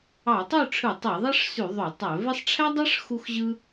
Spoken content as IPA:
ɑ˧˩˧ tˤ ø˥˨ ʈ͡ʂʰ ɯ˧˩˧ tˤ e˧˩˧ ðˤ ɑ˥ ʂ s y˧˩˧ ðˤ ø˧˩˧ tˤ æ˧˩˧ v e˥ sˤ ʈ͡ʂʰ æ˥ dˤ ɑ˥ ʂ x u˥ x ʑ ɯ˥

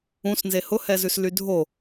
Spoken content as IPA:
ũ s n z e h ʊ h ɛ z ʉ s l y dʱ o

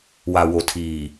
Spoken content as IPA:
w a˨ w o˨ tʰ iː˨

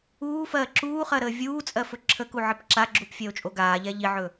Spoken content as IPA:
uː f ɜː ǁ uː χ ɜ ɾ əː vʲ uː t͡sʼ ɜ f ɵ ǁʰ ə k u ʕ ɪ p ǁ a ɡ͡ǁ u p fʲ ɜ o̯ t͡ʃʼ o ɡ aː ʎ ɛ ʎ i ʕ ɵ

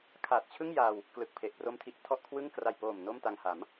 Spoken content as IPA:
kʰ a˨˩ t̚ t͡ɕʰ ɯ˥˩ ŋ j a˧ w | k l ɯ˨˩ k̚ pʰ e˨˩ ʔ p r o˦˥ m tʰ i˨˩ ʔ tʰ ɔ˥˩ ʔ kʰ w ɯ˥˩ ŋ k r a˨˩ j p oː˨˩ m n o˥˩ m t a˧ ŋ h a˩˦ m

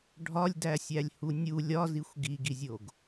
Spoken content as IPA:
ɖʱ ɒ lʲ d æ sʲ æ lʲ h u nʲ u lʲ ɒ z i xʷ ɡ i ɡ i zʲ o ɡ

